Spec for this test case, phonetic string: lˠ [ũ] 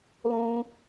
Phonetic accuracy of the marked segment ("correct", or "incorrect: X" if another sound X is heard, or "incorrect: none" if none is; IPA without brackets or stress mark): correct